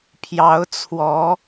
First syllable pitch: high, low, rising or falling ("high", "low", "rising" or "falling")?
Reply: rising